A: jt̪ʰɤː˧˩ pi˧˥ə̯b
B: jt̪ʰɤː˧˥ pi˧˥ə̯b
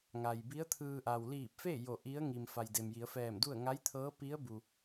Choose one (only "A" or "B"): B